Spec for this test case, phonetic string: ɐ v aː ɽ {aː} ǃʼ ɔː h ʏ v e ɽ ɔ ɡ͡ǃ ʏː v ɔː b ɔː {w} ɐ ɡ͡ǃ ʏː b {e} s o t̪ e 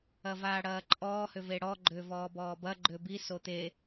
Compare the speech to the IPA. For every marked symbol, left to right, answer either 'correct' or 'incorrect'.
incorrect: ɐː, incorrect: b, incorrect: i

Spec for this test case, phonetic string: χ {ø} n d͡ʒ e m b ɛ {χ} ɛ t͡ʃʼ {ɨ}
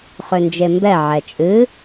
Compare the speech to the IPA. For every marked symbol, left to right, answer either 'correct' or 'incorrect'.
correct, incorrect: ʕ, correct

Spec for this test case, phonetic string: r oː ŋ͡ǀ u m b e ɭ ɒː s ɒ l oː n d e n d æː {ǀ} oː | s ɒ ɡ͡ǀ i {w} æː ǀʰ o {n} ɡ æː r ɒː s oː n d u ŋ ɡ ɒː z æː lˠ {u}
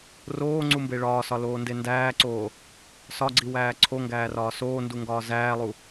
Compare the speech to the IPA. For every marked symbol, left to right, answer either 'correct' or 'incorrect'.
correct, correct, incorrect: ŋ, correct

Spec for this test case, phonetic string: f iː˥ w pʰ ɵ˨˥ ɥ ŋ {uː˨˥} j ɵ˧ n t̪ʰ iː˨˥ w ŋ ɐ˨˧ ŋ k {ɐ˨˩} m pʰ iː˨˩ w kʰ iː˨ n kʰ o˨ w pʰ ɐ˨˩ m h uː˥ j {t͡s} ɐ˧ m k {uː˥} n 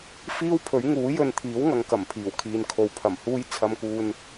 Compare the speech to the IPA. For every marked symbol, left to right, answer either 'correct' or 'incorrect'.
correct, correct, incorrect: t͡sʰ, incorrect: uː˧

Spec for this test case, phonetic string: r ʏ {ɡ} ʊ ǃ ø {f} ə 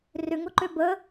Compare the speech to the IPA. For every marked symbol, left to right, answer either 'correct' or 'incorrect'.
incorrect: ŋ, incorrect: b

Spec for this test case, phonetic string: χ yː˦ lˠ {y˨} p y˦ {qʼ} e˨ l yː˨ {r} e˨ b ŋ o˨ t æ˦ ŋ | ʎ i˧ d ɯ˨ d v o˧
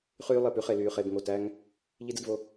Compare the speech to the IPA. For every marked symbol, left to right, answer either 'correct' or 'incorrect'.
incorrect: e˨, incorrect: χ, incorrect: χ

